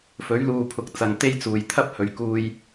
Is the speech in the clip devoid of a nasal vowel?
yes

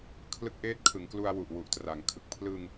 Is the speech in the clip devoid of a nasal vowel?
yes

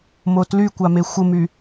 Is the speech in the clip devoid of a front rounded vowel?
no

